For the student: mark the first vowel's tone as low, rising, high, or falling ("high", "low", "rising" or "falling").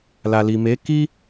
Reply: low